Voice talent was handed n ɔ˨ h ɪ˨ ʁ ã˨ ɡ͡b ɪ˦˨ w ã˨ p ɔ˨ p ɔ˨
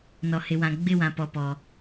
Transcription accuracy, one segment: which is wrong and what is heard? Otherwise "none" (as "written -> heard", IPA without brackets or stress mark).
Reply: ʁ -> w